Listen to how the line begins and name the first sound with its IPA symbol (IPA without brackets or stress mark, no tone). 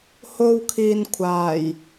h